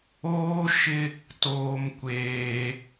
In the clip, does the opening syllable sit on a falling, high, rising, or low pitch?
high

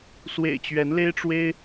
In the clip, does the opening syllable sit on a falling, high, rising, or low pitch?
low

